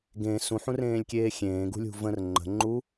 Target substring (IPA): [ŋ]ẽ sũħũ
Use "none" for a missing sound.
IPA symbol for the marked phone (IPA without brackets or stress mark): ɡ